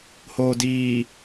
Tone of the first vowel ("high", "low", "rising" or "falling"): low